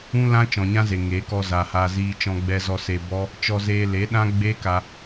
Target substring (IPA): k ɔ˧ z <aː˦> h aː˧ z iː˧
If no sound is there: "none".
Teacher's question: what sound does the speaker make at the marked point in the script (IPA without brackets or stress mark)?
aː˨